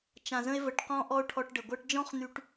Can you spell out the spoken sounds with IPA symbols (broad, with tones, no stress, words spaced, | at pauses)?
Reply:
t͡ʃã˨zə̃˧e̯və˨ʈ qɔ̃˧ ʔɔ˦o̯ʈʰɔ˧ʈɖə˨ ɡʷɜ˧ʈd͡ʒɔ̃˦χn̪y˧ʈ